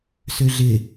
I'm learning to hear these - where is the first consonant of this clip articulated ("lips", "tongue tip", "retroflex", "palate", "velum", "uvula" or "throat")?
tongue tip